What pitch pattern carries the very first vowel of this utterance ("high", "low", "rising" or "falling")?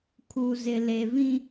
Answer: low